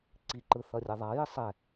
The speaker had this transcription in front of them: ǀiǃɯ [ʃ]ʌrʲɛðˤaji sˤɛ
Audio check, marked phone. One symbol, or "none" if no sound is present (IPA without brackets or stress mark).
θ